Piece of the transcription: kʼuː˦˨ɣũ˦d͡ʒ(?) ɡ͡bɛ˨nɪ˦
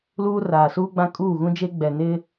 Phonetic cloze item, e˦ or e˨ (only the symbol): e˦